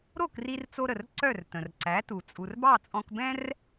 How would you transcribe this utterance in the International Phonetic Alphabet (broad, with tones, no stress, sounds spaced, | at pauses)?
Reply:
ɾ o˥˩ k r i˧ r t͡s o˧ ɾ ə˩ r ǀ œ˥˩ r t ə̃˩ r ǀ æ˩˥ t u˩ t͡sʼ u˩ r b ɑ˥˩ t͡sʼ ɔ̃˧ k b ɛ̃˥ r